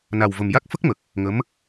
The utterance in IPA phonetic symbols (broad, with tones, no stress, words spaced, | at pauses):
na˨˩wvə˨˩m ja˦˥k̚ fə˦˥k̚mə˨˩k̚ | ŋə˧˥m